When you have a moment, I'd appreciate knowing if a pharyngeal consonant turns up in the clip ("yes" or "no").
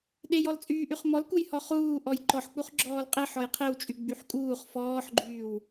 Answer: yes